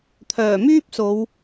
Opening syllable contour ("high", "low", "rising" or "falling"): low